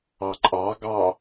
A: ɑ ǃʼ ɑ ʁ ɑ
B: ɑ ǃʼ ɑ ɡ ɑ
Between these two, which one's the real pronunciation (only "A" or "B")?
B